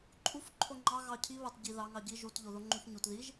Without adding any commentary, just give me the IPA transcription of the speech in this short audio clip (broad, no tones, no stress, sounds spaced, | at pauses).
ǃʼ u f ǃʰ o ŋ͡ǃ ɑ ɣ ɑ cʰ i β ɑ t ɟ i ð ɑ ŋ ɑ ɟ i ʒ u t ʎ o ð o ŋ͡ǃ u ç ɲ u t ð i ʒ